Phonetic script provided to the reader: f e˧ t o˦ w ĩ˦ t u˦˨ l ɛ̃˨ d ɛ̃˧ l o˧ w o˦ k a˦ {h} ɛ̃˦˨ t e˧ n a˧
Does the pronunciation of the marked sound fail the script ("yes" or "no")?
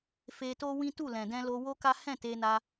no